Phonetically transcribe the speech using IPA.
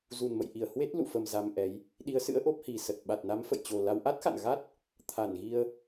zu˨˩nmə̰˧˨jʔi˧˩ə̯ hwe˦˥t̚ lṵ˧˨fə˨˩m za˧mʔɛ˨˦j | ɗi˨˦ə̯sɨ̰˧˥ə̯ʔo˦˥p̚ hi˨˩sə˨˩t̚ ɓa˨˩t̚na˨˦mfə̰˧˨jt͡ɕo˨˩ la˧w ʔa˦˥t̚xa̰˧˨n ɣa˦˥t̚ | t̪ʰa˧˩nɣi˧ə̯

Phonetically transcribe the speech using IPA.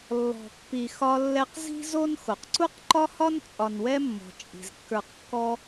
lːɔ̤˨pːi˨ xɒ˦lːɛ˦q zi̤˥zo˥n xo˩qǀu˥qǃɒ˥hɒ˥n t͡sʼɒ˨nwɛ˥mːɔ̤˩ t͡ʃʼi̤˩zkːə˞˨qkːɔ˦

